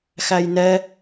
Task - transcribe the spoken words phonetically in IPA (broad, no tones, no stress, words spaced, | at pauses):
xæjnɛ